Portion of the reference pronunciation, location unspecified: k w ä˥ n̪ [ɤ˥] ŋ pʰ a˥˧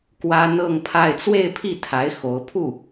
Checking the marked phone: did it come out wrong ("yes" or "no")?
yes